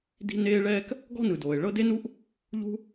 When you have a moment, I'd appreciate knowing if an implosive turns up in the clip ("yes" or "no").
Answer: no